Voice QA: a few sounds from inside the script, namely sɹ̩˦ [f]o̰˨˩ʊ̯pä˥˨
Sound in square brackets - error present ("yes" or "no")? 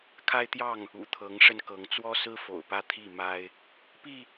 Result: no